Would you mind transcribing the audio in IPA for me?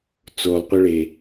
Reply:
t͡s o lˠ qʷ œ ɭ e

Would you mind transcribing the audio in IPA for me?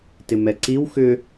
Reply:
t ɪ m ɛ ǀ i w x ʏ

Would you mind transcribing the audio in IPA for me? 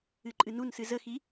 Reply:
ɨ ǃʼ ɨ n u n s ɨ z ə x i

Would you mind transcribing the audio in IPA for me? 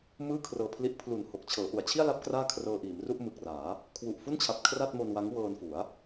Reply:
m ɯː˥˩ kʰ r ɤː˧ pʰ l i˦˥ ʔ pʰ l u˨˩ n h o˨˩ k̚ t͡ɕʰ ɤː˩˦ ʔ u˩˦ a̯ t͡ɕʰ i˥˩ a̯ l a˦˥ p̚ k r aː˥˩ kʰ r ɤː˧ ʔ iː˩˦ m r u˥˩ ʔ m ɯ˨˩ k̚ r aː˩˦ | kʰ w u˨˩ ʔ f u˥˩ n t͡ɕʰ a˨˩ p̚ kʰ r a˥˩ t̚ m o˧ n w a˦˥ ŋ w ɤː˧ n f u˩˦ a̯

